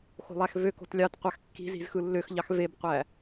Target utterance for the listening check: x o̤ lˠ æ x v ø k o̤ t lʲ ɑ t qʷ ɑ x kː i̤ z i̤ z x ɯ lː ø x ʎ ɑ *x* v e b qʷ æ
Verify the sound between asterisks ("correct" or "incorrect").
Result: correct